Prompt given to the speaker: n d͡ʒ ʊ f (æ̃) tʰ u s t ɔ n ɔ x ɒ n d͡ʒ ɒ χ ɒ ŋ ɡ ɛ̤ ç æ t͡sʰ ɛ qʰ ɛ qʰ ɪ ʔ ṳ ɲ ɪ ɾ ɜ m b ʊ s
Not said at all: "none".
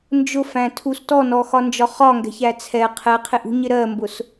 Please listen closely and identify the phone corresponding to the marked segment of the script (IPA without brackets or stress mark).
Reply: æ̃